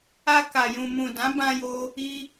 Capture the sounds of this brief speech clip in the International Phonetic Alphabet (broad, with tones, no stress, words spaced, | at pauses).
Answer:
a˧ka˨ jũ˨mũ˨dã˨˦bã˧ jo˦ | i˧